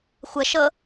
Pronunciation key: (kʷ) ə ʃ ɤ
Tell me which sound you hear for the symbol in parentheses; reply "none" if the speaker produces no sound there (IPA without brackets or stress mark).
xʷ